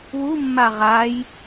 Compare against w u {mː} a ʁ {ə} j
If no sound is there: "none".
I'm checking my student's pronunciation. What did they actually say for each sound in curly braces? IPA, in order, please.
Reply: mː, a

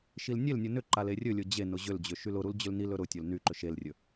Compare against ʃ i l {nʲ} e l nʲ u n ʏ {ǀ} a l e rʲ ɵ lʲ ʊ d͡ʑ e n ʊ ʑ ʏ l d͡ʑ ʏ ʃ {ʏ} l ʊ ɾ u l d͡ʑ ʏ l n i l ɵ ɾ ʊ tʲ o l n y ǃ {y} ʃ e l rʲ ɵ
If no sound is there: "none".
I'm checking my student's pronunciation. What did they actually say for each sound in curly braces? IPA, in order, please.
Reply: nʲ, ǃ, y, ʏ

